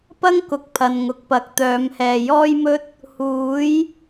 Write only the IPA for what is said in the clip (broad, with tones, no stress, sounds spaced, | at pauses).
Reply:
p ɐ˥ ŋ k ʊ˧ k̚ pʰ ɐ˨ n ŋ ʊ˨ k̚ p ɐ˨˥ k̚ t̪ œː˨˥ m h ɛː˨ j ɔː˥ j m ɵ˥ t̚ | h uː˨˥ j